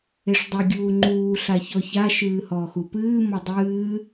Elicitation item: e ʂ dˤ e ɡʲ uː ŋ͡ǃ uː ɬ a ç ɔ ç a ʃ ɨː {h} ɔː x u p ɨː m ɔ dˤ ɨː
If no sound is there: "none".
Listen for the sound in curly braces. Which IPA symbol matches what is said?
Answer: h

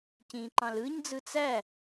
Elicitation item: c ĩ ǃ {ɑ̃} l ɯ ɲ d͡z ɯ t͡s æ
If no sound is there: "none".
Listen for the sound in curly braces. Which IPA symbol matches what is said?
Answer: ɑ̃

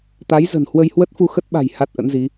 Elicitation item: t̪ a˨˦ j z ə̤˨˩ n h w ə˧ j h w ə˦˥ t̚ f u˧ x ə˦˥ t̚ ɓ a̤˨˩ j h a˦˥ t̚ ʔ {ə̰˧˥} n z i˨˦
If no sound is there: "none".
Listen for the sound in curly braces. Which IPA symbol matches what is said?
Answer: ə̰˧˥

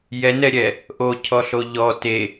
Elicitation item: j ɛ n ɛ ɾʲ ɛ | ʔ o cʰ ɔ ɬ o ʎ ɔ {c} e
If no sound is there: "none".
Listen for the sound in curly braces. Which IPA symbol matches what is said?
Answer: t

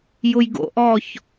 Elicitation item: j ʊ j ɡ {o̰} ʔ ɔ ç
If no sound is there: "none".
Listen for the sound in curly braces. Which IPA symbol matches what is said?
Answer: o̰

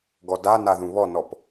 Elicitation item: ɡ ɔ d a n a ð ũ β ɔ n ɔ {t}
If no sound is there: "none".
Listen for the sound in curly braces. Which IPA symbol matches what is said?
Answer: p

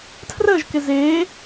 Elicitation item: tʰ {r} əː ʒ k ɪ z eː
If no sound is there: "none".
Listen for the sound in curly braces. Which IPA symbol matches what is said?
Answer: r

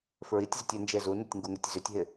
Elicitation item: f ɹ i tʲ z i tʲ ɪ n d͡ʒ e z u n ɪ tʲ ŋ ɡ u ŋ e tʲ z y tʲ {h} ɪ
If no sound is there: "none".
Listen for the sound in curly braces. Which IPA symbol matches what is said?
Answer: ɦ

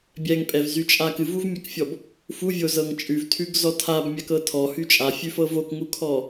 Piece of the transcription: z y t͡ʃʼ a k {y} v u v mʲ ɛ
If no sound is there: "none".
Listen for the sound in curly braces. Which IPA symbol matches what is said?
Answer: ɨ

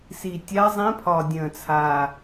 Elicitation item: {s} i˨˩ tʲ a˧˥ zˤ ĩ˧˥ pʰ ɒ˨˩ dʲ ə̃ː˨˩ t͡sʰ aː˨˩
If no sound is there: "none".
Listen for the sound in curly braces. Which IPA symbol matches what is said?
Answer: s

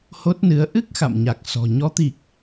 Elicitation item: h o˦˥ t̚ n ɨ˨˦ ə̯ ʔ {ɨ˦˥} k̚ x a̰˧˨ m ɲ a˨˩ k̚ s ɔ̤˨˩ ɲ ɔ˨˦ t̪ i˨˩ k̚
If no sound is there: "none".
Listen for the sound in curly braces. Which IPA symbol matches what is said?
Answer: ɨ˦˥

